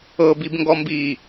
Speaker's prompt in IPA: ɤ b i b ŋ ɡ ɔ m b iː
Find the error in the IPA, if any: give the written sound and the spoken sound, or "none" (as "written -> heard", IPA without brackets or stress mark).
none